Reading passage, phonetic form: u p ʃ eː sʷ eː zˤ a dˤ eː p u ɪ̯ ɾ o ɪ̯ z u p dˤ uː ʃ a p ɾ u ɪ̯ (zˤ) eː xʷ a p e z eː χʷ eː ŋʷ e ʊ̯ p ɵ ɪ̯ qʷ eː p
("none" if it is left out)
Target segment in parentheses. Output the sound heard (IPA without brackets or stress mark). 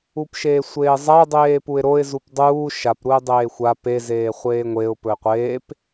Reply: dˤ